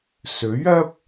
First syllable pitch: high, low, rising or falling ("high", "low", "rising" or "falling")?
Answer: rising